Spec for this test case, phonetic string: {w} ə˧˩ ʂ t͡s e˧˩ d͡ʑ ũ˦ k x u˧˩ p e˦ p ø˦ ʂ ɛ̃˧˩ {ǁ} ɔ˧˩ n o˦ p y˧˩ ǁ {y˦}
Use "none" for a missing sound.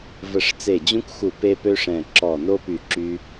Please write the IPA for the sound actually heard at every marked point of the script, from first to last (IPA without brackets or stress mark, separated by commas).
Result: v, ǁ, y˦